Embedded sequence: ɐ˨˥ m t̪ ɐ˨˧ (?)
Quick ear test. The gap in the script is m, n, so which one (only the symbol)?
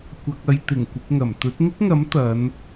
n